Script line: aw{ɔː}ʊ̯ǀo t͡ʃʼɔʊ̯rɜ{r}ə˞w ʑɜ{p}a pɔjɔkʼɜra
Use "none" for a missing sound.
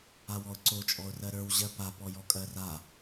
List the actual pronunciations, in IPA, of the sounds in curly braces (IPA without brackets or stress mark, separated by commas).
ɔ, ɾ, p